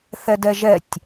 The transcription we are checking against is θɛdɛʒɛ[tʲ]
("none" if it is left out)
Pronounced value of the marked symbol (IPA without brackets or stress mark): tʲ